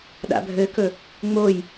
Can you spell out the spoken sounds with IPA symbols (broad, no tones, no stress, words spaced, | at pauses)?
ɗa̰bʱɘkɵ | ŋ͡moj